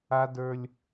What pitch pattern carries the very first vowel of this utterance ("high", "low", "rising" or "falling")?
high